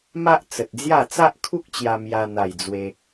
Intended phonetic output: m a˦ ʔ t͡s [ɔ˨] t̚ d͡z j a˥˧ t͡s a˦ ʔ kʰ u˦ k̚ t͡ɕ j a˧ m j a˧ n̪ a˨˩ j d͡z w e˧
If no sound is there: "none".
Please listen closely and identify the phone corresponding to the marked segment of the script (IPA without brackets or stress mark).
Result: ə˨